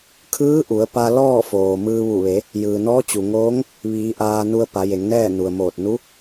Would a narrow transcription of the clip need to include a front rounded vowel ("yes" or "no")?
no